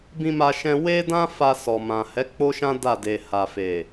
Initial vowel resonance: nasal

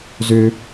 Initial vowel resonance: oral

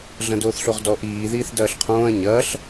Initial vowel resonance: nasal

